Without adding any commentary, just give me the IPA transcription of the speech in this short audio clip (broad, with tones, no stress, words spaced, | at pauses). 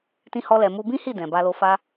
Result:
tĩ˧hɔ˧lɛ˨ mu˧ bĩ˦hi˦˨ dɛ̃˨ba˧lo˧ fa˧